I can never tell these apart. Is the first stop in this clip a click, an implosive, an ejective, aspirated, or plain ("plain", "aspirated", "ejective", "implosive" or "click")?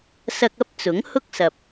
plain